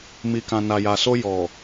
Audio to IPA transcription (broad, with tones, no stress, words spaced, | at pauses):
mi˨kã˨ na˨ja˨so˧ jɔ˨